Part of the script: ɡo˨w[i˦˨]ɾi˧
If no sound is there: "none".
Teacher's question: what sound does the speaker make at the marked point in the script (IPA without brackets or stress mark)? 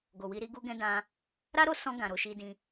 i˧